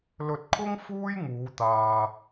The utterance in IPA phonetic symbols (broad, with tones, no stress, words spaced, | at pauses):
lɵ˧t̚kʰʊ˥ŋ fuː˥jŋuː˨˧t̪aː˨